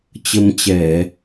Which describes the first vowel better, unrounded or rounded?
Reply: unrounded